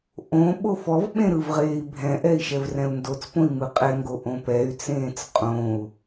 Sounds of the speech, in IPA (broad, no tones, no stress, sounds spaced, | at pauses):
ʔ õ ɓ o f ɔ v ɓ ẽ ɾ ɯ v ʁ eː i̯ bʱ ɛ̃ ʔ ɛ i̯ ʃ ɛ v r ɛ̃ u̯ n d o t͡s p õ i̯ m ɯ qʼ ɛ ŋ ɡ o ʔ õ p ɛ y̯ t͡s ẽː t͡s qʼ õ u̯